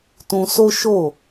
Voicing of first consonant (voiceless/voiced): voiceless